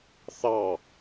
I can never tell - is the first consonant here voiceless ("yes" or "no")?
yes